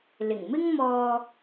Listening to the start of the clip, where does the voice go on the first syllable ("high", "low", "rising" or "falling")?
low